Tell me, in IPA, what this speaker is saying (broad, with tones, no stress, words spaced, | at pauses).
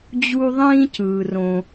d͡ʑu˧ ðˤĩː˧cɯː˩rõ˩